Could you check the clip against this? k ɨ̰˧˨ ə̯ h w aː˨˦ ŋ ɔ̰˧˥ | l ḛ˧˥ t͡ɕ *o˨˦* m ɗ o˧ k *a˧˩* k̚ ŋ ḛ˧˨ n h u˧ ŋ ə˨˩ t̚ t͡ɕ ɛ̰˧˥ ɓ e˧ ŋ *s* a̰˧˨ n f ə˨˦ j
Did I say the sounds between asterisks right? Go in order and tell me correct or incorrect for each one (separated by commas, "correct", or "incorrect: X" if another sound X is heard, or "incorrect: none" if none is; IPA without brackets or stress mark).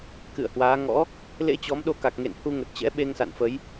incorrect: ɔ˨˦, incorrect: a˨˩, correct